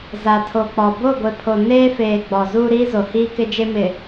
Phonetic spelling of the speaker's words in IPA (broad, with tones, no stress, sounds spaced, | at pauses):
z a˨ tʰ o˨ k͡p ɔ˨ b o˦˨ ɡʷ e˨ pʰ o˨ n eː˦ f eː˨ ɡ͡b ɔ˨ z uː˦ ɾ iː˦ z o˨ h iː˦ k ɪ˦ d͡ʒ e˦ m ɪ˨